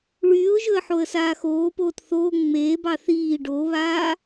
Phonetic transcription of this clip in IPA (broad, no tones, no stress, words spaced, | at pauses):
ɭyːʊ̯ʒɵə̯ ħoə̯saːxoːpoːt θoː ŋ͡meːbɑ θiː ɖoβaː